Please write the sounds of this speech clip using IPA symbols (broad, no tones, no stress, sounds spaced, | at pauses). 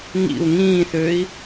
ŋ ḭ u̯ ŋ ĩː θ ø i̯